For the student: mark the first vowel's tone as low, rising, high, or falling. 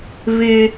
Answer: high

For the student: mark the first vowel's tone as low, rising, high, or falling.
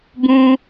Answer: high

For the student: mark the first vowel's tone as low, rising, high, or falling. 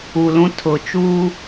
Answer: low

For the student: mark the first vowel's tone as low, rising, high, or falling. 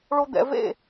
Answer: high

